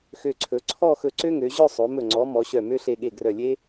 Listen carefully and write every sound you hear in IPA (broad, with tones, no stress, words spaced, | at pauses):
xø˧˩ǀʰɵ˩˧ ǀʰɔ˥˧xɵ˧ǀø˥ŋø˩˧ ʑœ˥˧sˤo˩˧mɵ˧˩ ŋ͡ǀɔ˩˧ mɔ˩˧ɕœ˧˩mø˥ɬe˧ ɠe˧˩ɡrœ˧˩lʲe˥